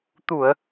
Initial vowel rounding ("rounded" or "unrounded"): rounded